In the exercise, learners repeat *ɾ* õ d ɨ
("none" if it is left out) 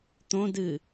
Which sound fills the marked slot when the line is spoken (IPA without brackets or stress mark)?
t̪